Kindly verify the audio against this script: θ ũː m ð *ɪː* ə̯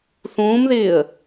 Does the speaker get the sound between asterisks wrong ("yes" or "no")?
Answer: no